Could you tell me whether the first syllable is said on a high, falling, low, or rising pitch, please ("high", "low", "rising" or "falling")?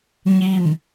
falling